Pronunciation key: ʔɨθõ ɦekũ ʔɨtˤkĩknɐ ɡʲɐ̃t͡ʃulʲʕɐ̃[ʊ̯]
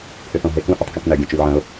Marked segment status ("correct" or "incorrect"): correct